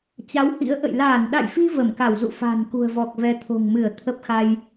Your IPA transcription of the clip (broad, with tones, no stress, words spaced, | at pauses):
t͡ɕa˨˦whḭ˧˥ə̯ ʔə̰˧˨j laː˧˩nɗa̰˧˨jfi˧ və˧˩mka˧˩wzṵ˧˨ fa̤˨˩n kṳ˨˩ə̯vɔ˨˩k̚ vɛ˨˦t̪ʰo̤˨˩ŋmɨ˧˩ə̯ t̪ʰə˦˥p̚xa˧j